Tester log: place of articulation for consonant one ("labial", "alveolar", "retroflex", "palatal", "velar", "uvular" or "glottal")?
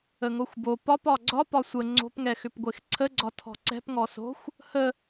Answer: velar